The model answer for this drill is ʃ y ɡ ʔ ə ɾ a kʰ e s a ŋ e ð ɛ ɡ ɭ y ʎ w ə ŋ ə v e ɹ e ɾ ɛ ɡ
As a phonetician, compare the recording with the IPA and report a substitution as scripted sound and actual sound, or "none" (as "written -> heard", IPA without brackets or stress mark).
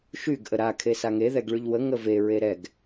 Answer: none